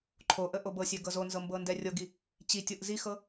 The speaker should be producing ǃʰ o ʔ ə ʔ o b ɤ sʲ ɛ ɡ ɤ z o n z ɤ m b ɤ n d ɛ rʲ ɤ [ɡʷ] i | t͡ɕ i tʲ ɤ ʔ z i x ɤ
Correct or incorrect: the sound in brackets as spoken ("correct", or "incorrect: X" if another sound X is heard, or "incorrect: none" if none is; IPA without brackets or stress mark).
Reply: incorrect: ɡ